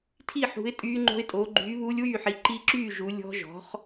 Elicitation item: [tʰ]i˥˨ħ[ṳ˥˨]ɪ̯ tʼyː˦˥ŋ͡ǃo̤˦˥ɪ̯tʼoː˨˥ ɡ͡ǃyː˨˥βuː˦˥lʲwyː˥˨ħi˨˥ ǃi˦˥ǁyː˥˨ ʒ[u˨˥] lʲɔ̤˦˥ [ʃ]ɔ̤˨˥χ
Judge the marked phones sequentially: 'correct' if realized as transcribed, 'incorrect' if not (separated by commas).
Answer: correct, incorrect, correct, incorrect